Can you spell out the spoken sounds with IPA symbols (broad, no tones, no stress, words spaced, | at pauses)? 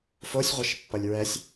fosʲʁʷɛʃpːʌlʲ ɹɛsʲ